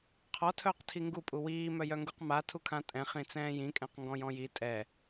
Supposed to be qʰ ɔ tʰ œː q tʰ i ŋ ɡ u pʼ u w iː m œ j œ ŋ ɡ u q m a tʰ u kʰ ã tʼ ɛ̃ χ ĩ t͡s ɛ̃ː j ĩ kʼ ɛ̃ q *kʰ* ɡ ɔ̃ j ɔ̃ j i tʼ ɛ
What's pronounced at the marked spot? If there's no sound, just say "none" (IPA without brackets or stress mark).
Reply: ŋ